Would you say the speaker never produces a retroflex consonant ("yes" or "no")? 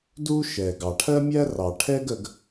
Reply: no